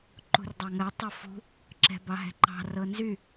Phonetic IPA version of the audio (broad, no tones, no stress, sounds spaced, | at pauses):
ǃ ṳ r dˤ ɑ ŋ ɜ tˤ ɤ f ṳ | ǁ ɛ̤ b ɑ ɦ ɛ̤ ǃ ɑ̤ r ɤ n z y